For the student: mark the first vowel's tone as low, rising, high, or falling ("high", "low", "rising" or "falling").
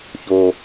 low